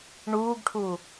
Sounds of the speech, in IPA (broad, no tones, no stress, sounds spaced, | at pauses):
ɳ uː ɡ ʈʰ u